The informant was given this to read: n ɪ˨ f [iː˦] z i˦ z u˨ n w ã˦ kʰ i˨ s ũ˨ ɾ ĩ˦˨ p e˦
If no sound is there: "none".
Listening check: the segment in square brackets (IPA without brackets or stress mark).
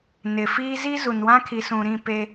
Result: iː˦